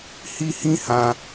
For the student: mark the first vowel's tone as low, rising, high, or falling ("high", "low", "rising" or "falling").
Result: high